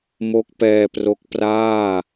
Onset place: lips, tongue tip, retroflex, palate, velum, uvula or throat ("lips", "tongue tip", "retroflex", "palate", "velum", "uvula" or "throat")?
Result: lips